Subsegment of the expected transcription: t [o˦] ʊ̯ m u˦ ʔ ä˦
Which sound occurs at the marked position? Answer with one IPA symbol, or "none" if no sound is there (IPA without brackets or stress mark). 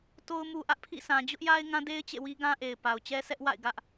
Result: o˦